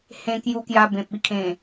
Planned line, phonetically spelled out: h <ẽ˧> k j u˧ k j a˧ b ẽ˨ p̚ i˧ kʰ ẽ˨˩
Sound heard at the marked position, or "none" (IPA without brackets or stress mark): ẽ˧